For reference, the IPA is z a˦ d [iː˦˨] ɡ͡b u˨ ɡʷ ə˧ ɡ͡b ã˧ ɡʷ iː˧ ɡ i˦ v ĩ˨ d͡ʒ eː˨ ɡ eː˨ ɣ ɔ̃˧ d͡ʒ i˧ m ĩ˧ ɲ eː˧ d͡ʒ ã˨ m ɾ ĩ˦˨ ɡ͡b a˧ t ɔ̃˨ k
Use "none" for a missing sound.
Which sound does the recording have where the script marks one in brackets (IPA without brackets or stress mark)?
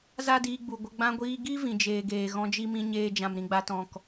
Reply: iː˧